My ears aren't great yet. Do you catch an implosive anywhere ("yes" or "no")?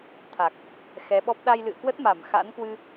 yes